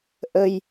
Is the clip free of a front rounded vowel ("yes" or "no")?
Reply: yes